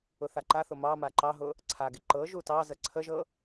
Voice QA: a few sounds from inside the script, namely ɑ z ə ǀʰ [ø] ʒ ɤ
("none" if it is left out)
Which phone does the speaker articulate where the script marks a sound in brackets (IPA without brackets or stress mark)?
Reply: ə